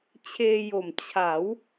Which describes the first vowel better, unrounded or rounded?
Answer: unrounded